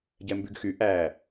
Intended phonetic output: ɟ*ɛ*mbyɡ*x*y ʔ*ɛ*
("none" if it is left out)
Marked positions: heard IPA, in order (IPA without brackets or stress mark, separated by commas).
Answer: ɛ, x, æ